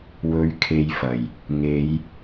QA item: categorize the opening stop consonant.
aspirated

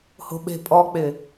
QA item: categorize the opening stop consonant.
implosive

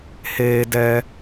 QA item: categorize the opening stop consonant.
plain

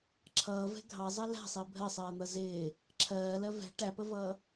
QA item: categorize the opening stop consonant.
click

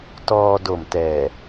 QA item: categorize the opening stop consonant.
plain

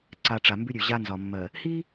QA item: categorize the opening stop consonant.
click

